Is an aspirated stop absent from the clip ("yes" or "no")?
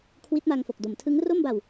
no